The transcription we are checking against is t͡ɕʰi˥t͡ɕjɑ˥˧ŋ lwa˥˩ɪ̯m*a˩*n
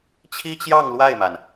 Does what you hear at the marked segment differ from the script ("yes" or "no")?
no